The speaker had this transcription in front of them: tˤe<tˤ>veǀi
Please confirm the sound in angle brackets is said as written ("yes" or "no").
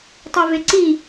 no